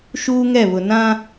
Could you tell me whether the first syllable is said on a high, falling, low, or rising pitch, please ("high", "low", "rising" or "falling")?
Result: high